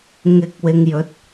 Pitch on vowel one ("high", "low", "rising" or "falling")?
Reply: low